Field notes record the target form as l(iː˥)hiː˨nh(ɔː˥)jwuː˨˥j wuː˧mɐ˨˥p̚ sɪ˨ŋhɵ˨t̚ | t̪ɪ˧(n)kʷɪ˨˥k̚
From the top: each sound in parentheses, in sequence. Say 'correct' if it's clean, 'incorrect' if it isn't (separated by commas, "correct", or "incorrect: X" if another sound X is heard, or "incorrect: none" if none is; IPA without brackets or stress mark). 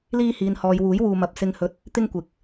incorrect: iː˧, incorrect: ɔː˨, incorrect: ŋ